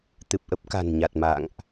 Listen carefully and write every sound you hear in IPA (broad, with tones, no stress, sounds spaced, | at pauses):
t̪ ɨ˨˩ p̚ ʔ ə˦˥ p̚ k a̤˨˩ n ɲ a˨˩ t̚ m a̰˧˨ ŋ ʔ